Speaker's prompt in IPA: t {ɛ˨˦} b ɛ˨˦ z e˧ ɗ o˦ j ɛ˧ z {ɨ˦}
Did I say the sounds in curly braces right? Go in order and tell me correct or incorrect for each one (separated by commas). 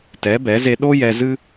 correct, correct